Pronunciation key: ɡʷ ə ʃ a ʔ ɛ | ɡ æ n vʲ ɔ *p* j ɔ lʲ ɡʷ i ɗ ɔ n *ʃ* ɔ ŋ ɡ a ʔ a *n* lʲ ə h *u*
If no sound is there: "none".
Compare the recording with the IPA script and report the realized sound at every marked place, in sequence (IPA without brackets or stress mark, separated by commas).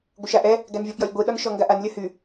p, ʃ, n, y